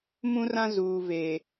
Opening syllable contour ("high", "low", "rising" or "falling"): high